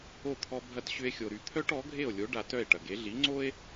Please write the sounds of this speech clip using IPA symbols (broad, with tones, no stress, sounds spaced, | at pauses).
o˥˩ t̪ʰ ɔ˧ bʱ ɐ˧ t ɕ ʏ˧ e̯ xʲ o˩ ɾ y˩ t̪ʰ œ˥ ʈ ɔ˩˥ ɡʱ e˥˩ o̯ lʲ o˩˥ ɖ a˧ t œ˥˩ e̯ ʈ ɐ˩ ɡ e˩˥ ɮ i˩˥ ŋ͡ǀ o˥ e̯